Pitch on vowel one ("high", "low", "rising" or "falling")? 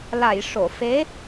low